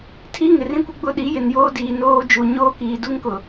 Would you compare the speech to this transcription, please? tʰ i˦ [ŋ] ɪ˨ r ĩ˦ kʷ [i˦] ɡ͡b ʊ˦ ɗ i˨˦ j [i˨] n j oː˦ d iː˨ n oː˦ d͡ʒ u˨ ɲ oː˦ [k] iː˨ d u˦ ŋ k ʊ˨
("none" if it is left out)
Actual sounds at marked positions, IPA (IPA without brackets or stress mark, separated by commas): ŋ, ɪ˦, ɪ˨, k